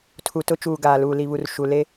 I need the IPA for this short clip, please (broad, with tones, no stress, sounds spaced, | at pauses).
tʰ u˨ t ʊ˦ t͡ʃ uː˨ ɡ aː˨ l uː˨ l i˨ β u˨ r ʃ u˨ l e˦